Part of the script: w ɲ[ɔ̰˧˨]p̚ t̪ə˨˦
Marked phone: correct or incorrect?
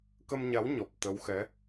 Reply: incorrect